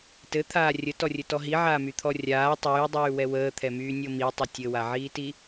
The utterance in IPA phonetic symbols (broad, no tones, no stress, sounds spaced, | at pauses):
t ɘ t̪ʰ aː rʲ ə t ɔ rʲ ɘ t ɔ ɦ i ʕ aː m y t̪ʰ ɔ rʲ aː tˤ yː dˤ yː w ɛ w əː t̪ʰ ɛ m yː nʲ ɤ m i tˤ ə tʲ ɘ w a ʕ iː t i